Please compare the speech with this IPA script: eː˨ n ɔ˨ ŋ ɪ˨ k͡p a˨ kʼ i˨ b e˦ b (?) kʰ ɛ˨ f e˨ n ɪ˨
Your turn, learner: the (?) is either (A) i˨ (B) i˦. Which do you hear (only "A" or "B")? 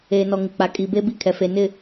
B